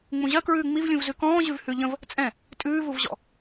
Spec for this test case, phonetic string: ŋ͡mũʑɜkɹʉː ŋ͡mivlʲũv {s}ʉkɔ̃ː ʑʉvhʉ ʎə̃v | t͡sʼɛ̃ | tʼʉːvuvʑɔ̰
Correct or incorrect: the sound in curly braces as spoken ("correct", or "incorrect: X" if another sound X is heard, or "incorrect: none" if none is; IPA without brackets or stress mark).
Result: incorrect: z